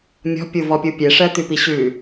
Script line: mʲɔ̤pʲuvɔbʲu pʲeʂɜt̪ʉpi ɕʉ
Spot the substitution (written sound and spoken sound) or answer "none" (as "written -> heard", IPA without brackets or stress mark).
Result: bʲ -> pʲ